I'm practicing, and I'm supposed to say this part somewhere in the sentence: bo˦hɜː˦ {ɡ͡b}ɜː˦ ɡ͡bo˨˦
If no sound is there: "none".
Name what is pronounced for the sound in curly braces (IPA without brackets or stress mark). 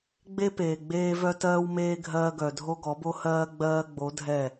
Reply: ɡ͡b